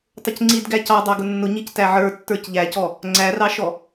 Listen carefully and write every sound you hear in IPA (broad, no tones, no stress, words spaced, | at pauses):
tˤʊcŋ͡ǀid ɡæcɑ dˤɑɡʊnːʊ ɲictæʕə˞ tːə˞cʎæcɔ | ŋ͡ǀærɑʃɔ